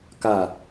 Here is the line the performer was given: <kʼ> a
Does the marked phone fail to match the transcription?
yes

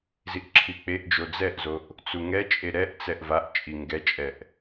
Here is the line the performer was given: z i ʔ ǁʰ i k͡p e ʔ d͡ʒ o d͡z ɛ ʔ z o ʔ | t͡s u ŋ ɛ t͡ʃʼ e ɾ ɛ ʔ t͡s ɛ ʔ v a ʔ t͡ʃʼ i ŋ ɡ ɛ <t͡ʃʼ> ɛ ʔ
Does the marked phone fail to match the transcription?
no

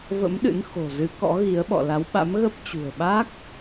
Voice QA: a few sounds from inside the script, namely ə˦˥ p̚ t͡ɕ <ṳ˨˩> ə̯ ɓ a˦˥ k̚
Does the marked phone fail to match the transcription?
no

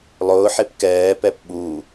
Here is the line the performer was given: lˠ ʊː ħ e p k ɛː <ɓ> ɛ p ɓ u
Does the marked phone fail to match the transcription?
yes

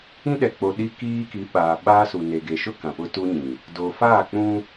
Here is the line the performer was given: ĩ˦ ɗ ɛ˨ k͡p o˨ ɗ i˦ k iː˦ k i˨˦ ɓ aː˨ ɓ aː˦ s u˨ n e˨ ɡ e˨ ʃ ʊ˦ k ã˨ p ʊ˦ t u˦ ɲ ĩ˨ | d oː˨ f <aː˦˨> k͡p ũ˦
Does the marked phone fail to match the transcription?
no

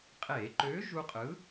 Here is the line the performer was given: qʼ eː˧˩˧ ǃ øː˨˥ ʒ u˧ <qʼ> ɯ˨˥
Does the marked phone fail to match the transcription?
no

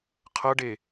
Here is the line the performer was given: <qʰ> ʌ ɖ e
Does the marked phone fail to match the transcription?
no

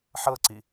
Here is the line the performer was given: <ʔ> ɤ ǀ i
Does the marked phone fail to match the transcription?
yes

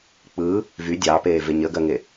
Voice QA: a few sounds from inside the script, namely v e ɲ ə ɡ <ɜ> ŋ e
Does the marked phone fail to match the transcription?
no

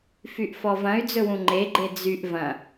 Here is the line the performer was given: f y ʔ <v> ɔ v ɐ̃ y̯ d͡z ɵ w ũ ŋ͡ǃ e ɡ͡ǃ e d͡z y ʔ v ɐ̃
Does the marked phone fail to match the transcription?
yes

